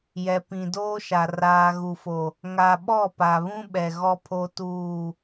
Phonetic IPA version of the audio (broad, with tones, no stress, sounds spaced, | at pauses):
j ɛ˨ p ĩ˨ d oː˦ ʃ a˨ r aː˨ ɣ u˨ f o˨ | ŋ a˨ ɓ ɔ˦˨ p a˨ β ũ˦ ɓ ɛ˨ ɣ ɔ˦ pʰ o˦ t uː˦˨